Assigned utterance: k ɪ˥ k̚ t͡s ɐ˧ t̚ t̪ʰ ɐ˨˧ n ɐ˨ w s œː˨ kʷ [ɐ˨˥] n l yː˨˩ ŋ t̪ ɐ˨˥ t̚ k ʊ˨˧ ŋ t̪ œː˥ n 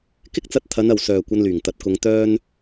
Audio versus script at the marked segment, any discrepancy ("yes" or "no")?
yes